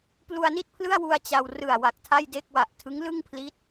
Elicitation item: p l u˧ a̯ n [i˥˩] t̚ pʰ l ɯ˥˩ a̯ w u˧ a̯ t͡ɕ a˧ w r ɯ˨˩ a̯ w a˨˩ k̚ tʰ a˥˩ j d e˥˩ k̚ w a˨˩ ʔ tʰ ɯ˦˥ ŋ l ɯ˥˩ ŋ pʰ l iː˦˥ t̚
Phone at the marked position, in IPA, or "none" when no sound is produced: i˥˩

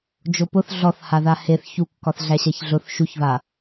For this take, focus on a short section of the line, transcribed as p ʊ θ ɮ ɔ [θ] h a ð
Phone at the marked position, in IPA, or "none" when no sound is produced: θ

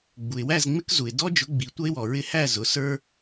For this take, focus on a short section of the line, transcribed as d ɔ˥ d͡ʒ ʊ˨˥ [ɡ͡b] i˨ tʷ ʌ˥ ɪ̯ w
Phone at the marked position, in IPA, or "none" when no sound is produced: ɡ͡b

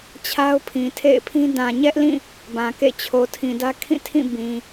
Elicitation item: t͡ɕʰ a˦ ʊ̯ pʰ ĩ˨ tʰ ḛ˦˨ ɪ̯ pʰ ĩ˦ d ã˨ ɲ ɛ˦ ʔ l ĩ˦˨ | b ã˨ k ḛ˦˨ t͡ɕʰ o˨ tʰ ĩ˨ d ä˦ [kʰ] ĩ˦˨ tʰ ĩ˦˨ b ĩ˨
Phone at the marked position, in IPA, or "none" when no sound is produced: kʰ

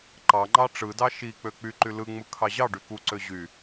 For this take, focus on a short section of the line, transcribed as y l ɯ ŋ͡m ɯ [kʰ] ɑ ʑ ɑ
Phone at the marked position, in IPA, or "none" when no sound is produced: kʰ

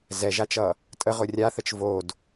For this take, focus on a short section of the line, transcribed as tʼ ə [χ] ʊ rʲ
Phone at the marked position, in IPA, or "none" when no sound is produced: ʁ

